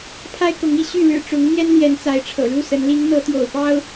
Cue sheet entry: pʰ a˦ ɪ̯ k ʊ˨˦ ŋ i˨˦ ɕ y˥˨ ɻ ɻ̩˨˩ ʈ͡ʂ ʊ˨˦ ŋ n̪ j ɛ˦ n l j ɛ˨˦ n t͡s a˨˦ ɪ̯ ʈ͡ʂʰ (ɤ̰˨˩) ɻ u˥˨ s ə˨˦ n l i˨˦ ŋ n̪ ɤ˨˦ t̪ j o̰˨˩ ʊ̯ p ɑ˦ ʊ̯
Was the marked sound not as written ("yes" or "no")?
no